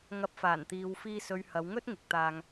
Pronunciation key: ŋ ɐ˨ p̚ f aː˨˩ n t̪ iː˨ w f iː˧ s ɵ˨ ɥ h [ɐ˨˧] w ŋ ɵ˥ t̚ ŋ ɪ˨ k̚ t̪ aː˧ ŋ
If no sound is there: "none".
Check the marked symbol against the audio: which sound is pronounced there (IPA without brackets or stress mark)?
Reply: ɐ˨˧